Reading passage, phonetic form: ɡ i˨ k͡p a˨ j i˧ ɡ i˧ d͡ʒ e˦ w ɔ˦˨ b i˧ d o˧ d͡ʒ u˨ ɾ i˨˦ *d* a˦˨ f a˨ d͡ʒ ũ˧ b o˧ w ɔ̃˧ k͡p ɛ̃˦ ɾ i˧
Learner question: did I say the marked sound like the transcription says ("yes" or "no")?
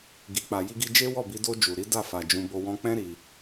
yes